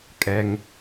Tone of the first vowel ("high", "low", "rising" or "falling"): low